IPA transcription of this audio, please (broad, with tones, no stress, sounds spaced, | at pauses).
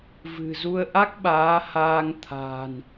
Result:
v ɨ̤˨˩ z u˧ ə̯ ʔ a˦˥ k̚ ɓ aː˨˦ h aː˧ ŋ t̪ʰ a̤ː˨˩ n